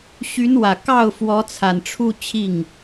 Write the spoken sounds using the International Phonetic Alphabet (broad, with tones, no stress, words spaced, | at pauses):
ɕy˧˥nwä˨˩ kɑ˥˩ʊ̯ fwɔ˧˥t͡sʰa˨˩nʈ͡ʂʰu˥˧ t͡ɕʰi˥˩ŋ